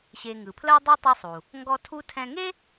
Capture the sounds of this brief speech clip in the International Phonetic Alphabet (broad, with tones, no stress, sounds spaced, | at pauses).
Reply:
ɕ e˨ ŋ ɯ˩ pʰ l ɜ˥ dˤ u˥ tˤ e˦ sˤ u˩ | ŋ ɡ ɔ˦ tʰ u˥ tʰ ɛ̃˦ ŋ e˥